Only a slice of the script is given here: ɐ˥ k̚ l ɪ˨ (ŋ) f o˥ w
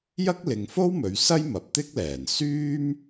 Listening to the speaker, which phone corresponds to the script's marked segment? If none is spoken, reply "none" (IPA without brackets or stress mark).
ŋ